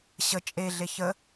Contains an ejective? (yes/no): yes